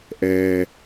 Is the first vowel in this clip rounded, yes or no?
no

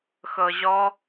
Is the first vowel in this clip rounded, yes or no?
no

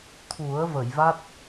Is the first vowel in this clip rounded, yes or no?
yes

